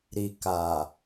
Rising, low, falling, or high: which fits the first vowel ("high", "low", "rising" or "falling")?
low